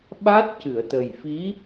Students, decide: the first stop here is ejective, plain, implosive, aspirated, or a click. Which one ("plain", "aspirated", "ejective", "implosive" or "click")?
implosive